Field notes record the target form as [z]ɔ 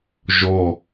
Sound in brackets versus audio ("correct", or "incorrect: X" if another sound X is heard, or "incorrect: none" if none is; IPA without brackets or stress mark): incorrect: ʒ